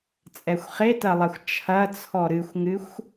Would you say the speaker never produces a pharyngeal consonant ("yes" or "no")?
yes